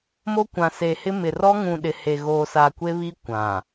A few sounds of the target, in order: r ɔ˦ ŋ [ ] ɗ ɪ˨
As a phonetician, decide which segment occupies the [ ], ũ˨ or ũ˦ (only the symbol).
ũ˨